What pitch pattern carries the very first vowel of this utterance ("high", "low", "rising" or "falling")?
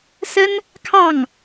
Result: high